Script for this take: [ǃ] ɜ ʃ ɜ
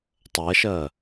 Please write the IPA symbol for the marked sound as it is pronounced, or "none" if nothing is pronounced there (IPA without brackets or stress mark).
tˤ